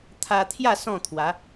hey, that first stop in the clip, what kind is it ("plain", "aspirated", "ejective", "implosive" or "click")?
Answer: aspirated